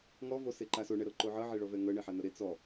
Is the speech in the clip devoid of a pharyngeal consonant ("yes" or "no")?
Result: no